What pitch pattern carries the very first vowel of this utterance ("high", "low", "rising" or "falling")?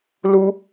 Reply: high